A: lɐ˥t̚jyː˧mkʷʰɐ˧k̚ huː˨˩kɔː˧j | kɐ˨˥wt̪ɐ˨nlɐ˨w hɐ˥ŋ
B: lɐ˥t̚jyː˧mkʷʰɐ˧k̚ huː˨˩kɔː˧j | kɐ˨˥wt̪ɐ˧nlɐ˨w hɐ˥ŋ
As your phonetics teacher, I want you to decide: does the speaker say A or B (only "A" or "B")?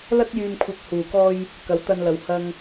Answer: B